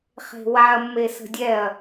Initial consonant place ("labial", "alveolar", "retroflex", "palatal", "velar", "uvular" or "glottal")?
uvular